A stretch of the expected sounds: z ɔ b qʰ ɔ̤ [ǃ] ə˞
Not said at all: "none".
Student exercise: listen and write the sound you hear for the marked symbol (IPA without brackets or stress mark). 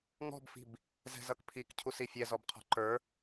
ǃ